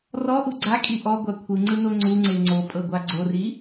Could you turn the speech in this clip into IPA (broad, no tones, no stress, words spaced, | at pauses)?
rɔʔu ɡ͡ǀakʼi ʔɔɡʷa kʷʰɯŋ͡ǀɯno ŋ͡ǀuŋ͡ǀe ŋ͡ǀopʼɤɡʷa ɡ͡ǀori